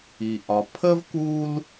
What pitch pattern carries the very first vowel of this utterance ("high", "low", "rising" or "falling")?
low